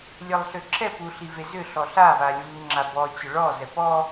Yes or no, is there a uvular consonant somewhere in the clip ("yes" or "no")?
no